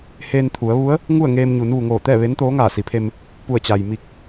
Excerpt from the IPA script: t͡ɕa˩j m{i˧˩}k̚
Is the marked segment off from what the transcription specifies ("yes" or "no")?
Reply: no